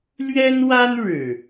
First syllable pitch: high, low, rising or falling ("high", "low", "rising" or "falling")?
high